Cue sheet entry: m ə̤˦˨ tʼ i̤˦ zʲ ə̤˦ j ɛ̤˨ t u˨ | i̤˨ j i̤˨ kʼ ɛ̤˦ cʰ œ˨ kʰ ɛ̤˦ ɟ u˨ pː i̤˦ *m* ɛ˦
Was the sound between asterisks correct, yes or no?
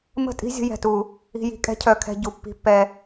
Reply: no